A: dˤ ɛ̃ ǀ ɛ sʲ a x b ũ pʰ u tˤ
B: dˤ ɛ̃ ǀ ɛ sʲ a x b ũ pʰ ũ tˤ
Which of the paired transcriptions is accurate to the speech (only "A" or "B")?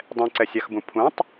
B